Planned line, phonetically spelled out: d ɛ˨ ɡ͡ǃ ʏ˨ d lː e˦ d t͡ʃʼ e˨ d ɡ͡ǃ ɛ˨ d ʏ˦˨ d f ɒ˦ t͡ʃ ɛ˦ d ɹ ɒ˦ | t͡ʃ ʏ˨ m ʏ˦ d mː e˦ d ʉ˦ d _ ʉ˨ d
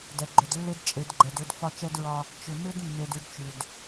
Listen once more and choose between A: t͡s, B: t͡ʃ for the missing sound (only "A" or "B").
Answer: B